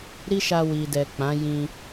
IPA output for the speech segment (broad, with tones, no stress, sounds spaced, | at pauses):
ɾ i˦ ʃ a˧ w i˨ d ɛ˨ k͡p ã˨˦ j ĩ˧